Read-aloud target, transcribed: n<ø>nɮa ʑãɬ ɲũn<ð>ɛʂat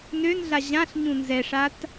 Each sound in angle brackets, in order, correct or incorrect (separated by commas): correct, incorrect